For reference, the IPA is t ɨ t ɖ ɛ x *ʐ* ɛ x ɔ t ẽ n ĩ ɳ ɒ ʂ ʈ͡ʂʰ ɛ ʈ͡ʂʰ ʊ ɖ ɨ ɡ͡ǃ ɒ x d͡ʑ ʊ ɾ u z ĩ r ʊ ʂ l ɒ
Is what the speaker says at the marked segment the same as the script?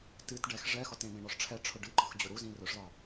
yes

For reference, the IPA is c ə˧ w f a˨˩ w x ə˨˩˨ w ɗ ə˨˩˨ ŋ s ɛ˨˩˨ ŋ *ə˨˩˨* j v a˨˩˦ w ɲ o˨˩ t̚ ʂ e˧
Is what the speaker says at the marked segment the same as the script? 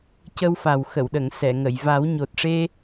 yes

